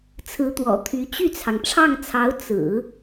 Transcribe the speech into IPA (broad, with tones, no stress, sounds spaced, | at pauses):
t͡sʰ ɹ̩˧˥ t̪ w ɔ̰˨˩ t̪ʰ y˧˥ t͡ɕ y˥˩ t͡sʰ ɑ˩ ŋ ʈ͡ʂʰ ɑ˥˩ ŋ t͡sʰ ɑ˧˥ ʊ̯ t͡s ɹ̩˨˩˦